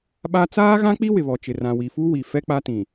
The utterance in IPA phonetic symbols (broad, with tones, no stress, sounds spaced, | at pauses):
ɓ a˦ t͡s aː˦ ɣ ã˦ k͡p i˦ w ɪ˨ β ɔ˨ t͡ʃ ɪ˨ r ã˨ w i˨ f u˦ w i˨ f ɛ˦ k͡p a˦ t ĩ˨